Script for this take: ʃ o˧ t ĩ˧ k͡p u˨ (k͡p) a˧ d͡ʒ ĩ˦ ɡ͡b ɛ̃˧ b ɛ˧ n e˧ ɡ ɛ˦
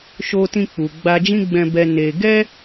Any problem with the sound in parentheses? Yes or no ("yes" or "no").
yes